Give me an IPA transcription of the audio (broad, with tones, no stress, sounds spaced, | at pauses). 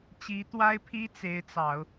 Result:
t͡ɕ i˧˥ t̪ w a˥ ɪ̯ pʰ i˥ t͡s e˧˥ ɪ̯ t͡s ɑ˨˩˦ ʊ̯